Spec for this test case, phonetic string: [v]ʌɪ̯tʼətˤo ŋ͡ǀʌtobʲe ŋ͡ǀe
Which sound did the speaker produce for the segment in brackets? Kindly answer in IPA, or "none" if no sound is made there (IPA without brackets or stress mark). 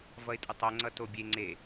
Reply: v